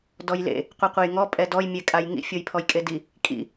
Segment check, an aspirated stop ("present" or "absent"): present